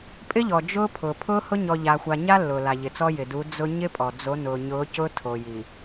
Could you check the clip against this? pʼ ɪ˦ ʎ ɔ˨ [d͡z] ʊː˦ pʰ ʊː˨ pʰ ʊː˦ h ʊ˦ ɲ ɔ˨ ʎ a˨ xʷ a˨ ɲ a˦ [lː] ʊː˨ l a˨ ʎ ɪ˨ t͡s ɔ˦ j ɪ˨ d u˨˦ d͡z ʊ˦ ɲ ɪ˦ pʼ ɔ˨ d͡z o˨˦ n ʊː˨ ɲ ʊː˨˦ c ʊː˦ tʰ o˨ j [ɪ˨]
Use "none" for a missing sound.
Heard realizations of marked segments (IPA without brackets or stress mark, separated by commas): d͡ʒ, lː, i˨